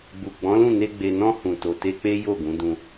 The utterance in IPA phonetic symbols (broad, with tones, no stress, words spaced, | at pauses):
ɡ͡bu˨ɡ͡bɔ̃˨˦lũ˦˨ne˧ ɡ͡be˨nɔ̃˧ hũ˨to˨ te˧k͡pe˦ jo˦˨ɡũ˨˦dũ˧